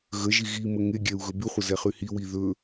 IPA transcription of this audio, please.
ɣ ə ʒ i ɣ i m ə ŋ e ɡʲ ɛ u̯ ɣ ɵ b y χʷ ə z ɛ χ y h i w i ð ɵ

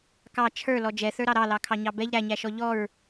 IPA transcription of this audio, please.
k ɑ t͡ʃʰ ə˞ l ɔ d͡ʒ ɛ θ ə˞ ɾ ɑ ɾ ɑ l ɑ kʰ ɑ ɲ ɑ b ɛ ʎ ɾ æ ɲ æ ʃ ɔ ʎ ɔ ɹ

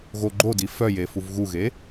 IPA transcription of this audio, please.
ɣ o ɡ͡ǃ o d i f œ j e f u v ɣ u ɣ e

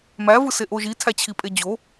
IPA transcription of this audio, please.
m æ v ɯ s e ʔ o ʒ i tʰ æ t͡ɕʰ i pʼ e d͡ʑ o

